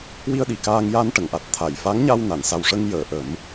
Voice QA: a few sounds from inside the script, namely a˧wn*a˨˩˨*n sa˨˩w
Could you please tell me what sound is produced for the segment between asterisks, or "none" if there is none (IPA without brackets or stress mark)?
a˨˩˨